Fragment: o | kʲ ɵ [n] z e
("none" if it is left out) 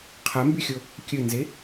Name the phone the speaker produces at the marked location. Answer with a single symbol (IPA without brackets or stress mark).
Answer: n